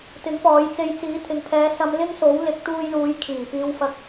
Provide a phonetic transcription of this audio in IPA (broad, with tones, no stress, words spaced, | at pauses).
t̪ɪ˨˥ŋpɔː˨˧jt͡se˧j t͡siː˨˥t̪ʰɪ˨˧ŋ pʰɛː˨˧sɐ˧m lɪ˥ŋso˨˥w lɪ˨˥k̚t̪uː˧jluː˨˧j kʰiː˨˩piː˧wfɐ˧k̚